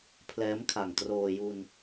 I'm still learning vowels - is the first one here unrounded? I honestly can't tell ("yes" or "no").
yes